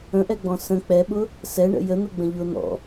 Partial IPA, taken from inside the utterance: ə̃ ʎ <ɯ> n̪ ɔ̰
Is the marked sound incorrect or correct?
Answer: incorrect